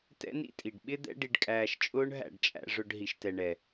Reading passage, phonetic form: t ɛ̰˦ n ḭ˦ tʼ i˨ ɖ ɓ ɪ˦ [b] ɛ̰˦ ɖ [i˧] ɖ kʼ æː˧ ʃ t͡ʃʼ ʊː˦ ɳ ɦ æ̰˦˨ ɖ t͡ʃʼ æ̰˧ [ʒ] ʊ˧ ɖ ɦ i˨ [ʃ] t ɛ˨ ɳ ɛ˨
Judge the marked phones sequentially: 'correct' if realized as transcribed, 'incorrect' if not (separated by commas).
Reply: incorrect, correct, incorrect, correct